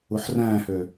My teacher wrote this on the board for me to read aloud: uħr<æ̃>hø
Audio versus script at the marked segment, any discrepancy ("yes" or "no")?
yes